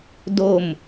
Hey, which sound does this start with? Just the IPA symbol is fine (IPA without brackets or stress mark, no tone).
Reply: d